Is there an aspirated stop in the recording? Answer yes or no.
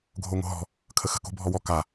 yes